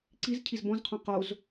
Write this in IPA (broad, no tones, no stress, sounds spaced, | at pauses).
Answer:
ǀ i z cʰ i z b ɔ̃ z qʰ õ q o z